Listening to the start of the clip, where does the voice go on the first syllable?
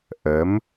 rising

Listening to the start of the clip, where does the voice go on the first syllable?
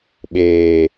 low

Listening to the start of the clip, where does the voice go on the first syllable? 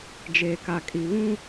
low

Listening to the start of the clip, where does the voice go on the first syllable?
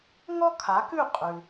high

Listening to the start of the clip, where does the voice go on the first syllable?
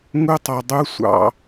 high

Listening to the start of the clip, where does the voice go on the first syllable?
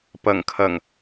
low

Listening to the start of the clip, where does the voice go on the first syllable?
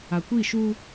low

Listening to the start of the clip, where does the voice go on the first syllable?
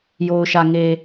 low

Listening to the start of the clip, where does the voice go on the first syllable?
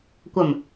low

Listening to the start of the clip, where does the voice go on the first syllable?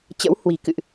rising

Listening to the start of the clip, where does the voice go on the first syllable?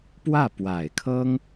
falling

